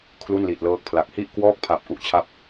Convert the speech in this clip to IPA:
kʰlu˥˩nli˨˩t̚lɤː˦˥k̚pʰla˨˩k̚ hi˥˩ʔkwɔː˥˩k̚pʰa˨˩p̚ ʔu˦˥ʔt͡ɕʰa˥˩p̚

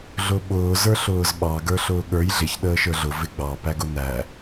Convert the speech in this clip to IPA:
ɮʊɓʊː zə˞ɬʊːzɓɑ ɡə˞ɬʊːɠə˞j ɮɪç ɗəːʃə˞ɮʊ vɪɡ͡bɑ pæɡʊnæ

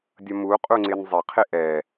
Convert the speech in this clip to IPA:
dʲʌmu qʼuŋ͡ǀɪnzˤɪ qʰɪʔɛ

